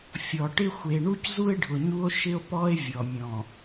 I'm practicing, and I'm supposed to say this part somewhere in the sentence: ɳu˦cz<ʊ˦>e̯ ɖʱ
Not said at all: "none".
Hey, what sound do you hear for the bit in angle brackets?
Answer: u˦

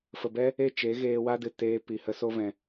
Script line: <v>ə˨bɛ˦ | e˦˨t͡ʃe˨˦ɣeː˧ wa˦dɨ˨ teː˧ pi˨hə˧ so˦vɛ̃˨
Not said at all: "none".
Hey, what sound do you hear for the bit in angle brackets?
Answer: f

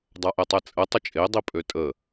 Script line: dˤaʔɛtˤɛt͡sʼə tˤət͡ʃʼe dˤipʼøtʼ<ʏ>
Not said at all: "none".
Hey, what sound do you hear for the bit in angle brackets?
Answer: ə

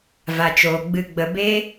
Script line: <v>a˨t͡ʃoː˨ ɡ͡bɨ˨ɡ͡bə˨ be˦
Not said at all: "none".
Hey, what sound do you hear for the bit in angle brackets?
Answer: v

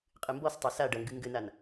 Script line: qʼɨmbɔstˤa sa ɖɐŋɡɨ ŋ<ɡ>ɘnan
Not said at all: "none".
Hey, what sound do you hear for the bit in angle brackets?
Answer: ɡ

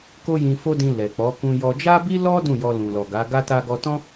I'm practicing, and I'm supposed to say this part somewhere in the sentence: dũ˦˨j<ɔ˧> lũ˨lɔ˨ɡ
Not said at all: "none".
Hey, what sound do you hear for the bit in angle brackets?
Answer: ɔ˧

